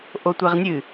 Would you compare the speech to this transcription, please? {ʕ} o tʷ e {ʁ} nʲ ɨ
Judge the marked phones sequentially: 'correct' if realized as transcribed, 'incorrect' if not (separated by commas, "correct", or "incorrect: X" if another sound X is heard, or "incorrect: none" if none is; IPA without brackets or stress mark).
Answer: incorrect: ʔ, correct